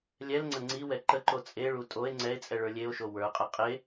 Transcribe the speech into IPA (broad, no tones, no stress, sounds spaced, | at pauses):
lʲ ɛ l ŋ͡ǀ ə ŋ͡ǀ i w ɛ ǃ ə ǃ o t͡sʼ e ɭ u tʼ o e̯ ŋ͡ǀ ɛ e̯ t͡sʼ ɛ ɭ ə˞ lʲ e o̯ ʃ o w ə˞ qʼ ɛ qʼ e